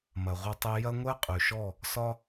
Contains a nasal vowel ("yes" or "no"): no